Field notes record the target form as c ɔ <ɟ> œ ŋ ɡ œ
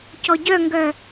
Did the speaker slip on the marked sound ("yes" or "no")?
no